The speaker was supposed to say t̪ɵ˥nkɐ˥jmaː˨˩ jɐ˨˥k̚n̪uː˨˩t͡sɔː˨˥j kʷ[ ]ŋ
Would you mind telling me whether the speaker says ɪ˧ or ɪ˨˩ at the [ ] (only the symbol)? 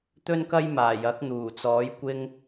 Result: ɪ˧